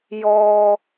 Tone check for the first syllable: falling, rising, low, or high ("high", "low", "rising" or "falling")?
low